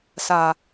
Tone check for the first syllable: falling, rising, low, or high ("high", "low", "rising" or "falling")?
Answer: low